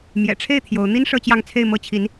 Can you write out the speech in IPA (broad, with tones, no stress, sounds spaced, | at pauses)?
m j ɛ̰˨˩ ʈ͡ʂʰ e˥˩ ɪ̯ t̪ʰ j o˧˥ ʊ̯ n̪ i˥ n ʂ ɤ˥˧ t͡ɕ j ɑ˥˧ ŋ t͡sʰ e˥˩ ɪ̯ m ɤ˥ t͡ɕʰ i˧˥ n